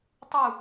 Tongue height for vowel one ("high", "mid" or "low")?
high